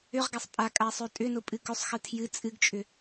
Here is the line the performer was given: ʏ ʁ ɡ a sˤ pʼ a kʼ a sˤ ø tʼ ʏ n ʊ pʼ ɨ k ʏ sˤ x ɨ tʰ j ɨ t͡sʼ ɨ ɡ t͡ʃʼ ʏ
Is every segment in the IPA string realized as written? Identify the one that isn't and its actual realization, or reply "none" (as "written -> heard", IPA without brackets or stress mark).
none